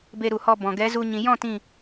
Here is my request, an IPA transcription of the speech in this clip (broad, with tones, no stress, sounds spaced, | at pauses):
b e˧ ɾ u˨ h ɔ˧ b ɔ̃˨ ɡ ɛ˨˦ z u˧ ɲ ĩ˨ j ɔ̃˦˨ t ĩ˦˨